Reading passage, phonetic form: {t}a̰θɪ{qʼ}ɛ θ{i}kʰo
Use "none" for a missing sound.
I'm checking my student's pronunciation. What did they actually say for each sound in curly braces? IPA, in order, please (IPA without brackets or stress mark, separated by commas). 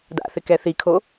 d, k, i